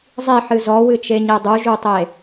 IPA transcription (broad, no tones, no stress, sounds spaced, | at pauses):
zˤ i ħ ɨ z ɔ w ɨ t͡ʃ e ɲ e dˤ u ʒ u tˤ e